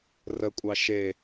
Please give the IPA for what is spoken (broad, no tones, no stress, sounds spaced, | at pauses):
r ə kʷʼ ɑ ʃ e